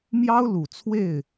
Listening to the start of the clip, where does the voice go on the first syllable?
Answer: high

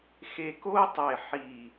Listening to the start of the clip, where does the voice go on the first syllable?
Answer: low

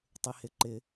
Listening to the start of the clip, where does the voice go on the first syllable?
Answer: low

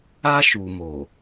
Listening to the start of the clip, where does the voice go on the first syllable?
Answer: high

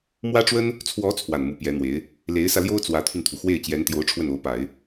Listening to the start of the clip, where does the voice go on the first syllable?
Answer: high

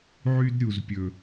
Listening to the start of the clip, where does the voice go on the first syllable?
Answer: high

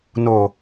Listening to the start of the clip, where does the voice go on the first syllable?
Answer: low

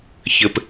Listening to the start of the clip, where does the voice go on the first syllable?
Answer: low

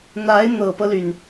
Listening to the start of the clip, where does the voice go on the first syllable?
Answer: rising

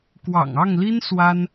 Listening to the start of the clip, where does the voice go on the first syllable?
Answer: low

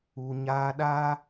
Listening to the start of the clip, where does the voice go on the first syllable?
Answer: low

